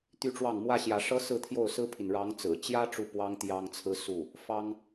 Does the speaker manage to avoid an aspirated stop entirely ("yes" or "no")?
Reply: no